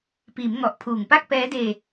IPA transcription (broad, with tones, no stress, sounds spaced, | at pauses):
p iː˩˦ m ŋ ɔ˨˩ ʔ pʰ uː˨˩ ŋ p a˥˩ k̚ p ɛː˦˥ d eː˧